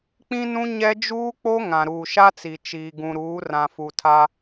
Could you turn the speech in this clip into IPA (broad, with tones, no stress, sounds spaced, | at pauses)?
k͡p ĩ˦ n ũ˦ ɲ ɛ˦ d͡ʒ uː˦ k͡p o˦ ŋ ã˨ ɾ uː˨ ʃ a˦ t͡s i˨ t͡ʃ iː˨ ɡ ũ˨ ɾ uː˨˦ r ã˨ f u˨ tʰ a˦